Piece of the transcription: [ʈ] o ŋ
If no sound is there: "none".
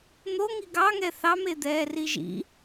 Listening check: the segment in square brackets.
n̪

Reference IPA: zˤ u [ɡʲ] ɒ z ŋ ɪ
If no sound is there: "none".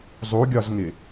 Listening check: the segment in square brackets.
ɡʲ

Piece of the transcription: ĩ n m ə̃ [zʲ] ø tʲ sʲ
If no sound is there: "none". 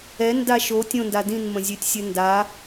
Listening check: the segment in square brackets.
zʲ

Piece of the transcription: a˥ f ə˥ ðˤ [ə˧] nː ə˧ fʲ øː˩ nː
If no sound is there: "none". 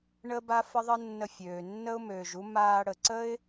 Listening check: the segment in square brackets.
ə˥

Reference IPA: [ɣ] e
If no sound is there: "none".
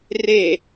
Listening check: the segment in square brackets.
r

